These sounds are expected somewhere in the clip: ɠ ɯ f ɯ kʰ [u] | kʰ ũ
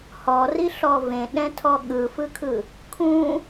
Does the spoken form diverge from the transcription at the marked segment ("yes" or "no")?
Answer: yes